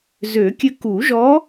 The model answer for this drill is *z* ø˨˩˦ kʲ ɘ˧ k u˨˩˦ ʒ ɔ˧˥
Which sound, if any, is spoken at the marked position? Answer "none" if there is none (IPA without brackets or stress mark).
z